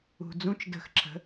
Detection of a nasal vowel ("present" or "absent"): present